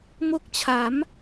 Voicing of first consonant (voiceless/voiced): voiced